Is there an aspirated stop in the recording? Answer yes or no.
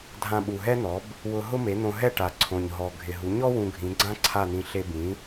yes